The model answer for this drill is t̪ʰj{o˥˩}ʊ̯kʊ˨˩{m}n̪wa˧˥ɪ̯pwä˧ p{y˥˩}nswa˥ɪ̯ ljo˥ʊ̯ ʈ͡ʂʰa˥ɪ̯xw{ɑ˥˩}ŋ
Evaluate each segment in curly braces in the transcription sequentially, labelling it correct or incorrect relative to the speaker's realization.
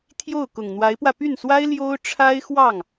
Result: correct, incorrect, correct, correct

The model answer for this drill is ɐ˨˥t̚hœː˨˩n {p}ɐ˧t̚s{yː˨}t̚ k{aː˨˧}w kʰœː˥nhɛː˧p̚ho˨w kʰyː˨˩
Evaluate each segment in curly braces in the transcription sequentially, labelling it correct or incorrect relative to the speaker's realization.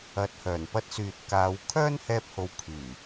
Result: correct, correct, correct

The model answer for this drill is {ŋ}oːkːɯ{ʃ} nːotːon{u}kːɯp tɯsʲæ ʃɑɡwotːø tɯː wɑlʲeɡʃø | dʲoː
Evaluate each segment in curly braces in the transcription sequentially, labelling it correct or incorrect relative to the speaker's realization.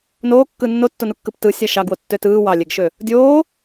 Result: incorrect, incorrect, correct

